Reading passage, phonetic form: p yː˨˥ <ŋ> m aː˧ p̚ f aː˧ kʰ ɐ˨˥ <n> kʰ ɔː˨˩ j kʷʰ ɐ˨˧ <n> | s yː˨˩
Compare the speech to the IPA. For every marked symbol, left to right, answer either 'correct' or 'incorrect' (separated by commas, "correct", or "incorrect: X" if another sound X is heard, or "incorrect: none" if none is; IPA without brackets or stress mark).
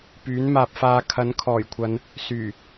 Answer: incorrect: n, correct, correct